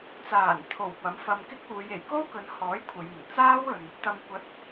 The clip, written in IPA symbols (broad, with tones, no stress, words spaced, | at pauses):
t͡saː˨˩nt̪ʰo˨˩w pɐ˨˥mfɐ˧mkɪ˥k̚ uː˨˧je˨˩j ko˥wkɵ˨˧nhɔː˨˥j kʷʰɐ˨˧jmɪ˨˩ŋ t͡saː˥wɵ˨n | t̪ɐ˨mkʷɐ˨˥t̚